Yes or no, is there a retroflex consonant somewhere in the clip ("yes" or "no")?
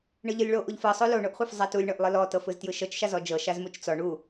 yes